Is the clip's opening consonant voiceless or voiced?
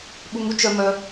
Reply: voiced